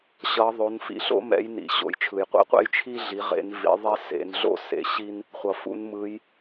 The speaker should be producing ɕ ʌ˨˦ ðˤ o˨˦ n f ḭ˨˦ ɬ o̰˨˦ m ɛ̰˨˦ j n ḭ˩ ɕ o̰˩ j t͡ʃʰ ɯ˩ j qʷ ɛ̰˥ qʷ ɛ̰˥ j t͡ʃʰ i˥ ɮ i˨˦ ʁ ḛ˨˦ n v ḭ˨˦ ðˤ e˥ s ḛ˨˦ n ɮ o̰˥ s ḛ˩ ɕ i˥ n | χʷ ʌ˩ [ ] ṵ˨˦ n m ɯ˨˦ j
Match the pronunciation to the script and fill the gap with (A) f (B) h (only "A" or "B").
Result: A